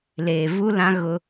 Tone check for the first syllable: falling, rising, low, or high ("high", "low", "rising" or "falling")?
low